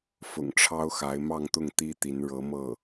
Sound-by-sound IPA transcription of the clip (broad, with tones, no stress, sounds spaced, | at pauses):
f ʊ̰˨˩ ŋ ʈ͡ʂʰ ɑ˥ ʊ̯ x a˧˥ ɪ̯ m ɑ˥˧ ŋ t̪ ʊ˥˩ ŋ t̪ i˥ t̪ i˧˥ n ɻ ɤ˧˥ m ɤ˥˩